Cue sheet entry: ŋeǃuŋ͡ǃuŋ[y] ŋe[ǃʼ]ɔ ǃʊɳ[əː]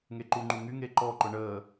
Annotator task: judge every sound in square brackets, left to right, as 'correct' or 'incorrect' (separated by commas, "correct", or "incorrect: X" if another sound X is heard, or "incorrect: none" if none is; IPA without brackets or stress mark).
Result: correct, incorrect: ǃ, correct